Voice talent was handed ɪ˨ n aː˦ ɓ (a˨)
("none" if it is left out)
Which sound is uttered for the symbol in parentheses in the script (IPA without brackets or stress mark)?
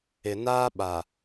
a˨